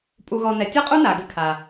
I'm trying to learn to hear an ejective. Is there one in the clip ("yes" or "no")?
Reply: yes